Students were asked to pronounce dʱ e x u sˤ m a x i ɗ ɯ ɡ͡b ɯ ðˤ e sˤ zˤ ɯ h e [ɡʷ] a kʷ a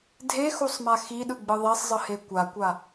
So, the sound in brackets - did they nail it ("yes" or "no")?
no